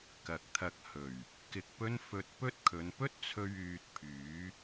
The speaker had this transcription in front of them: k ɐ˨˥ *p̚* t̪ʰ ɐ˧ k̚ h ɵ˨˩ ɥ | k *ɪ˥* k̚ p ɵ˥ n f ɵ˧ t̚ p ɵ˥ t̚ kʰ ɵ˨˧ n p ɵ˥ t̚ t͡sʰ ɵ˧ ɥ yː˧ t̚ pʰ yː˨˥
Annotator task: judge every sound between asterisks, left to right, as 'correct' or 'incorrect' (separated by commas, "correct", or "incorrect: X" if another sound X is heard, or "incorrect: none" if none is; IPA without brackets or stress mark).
incorrect: k̚, incorrect: ɪ˧